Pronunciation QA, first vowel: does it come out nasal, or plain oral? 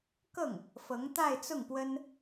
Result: oral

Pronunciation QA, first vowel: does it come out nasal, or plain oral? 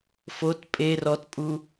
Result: oral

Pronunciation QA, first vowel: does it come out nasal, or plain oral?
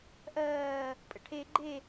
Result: oral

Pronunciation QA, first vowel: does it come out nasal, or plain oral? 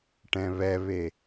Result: nasal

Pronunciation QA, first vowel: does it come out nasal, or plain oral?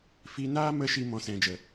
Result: oral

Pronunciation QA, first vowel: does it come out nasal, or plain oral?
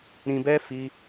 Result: nasal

